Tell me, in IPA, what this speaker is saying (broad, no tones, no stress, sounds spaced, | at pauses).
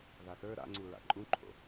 ð a θ ə˞ ɾ a̰ ŋ͡ǀ u ɹ a̰ ǃʼ ũ ǃʰ o̰